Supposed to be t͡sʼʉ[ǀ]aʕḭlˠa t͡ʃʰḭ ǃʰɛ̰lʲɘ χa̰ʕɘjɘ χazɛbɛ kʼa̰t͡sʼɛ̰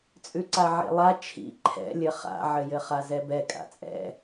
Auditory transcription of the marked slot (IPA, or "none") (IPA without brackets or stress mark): ǀ